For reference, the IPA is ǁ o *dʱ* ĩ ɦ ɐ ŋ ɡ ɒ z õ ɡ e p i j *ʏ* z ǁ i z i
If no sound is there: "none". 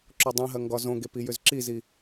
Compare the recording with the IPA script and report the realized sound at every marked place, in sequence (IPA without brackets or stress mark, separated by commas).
dˤ, ʏ